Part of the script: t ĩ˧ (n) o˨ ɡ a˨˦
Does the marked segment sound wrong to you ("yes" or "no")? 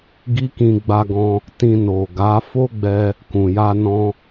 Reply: no